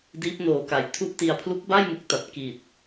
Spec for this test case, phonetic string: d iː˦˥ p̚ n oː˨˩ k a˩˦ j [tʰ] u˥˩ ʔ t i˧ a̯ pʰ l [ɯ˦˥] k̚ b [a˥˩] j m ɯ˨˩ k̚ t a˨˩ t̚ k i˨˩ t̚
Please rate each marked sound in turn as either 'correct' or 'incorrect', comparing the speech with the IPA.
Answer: correct, incorrect, correct

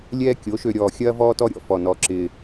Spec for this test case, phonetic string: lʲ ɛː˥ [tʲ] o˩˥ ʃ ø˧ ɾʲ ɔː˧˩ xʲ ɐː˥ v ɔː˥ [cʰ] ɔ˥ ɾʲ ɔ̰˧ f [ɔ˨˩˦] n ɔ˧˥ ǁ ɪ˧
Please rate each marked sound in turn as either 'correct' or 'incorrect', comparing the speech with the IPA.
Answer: incorrect, incorrect, incorrect

